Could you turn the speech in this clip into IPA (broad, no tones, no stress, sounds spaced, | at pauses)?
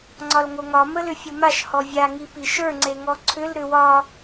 ŋ͡ǀ ɒ l ŋ o ŋ ɒ m ə l ʏ fʲ o m a ʃ h ɔ vʲ a ŋ i p i ʃ ə˞ ŋ͡ǀ e ŋ ɔ ǀʰ ʏ l ɾ ʏ w ɒ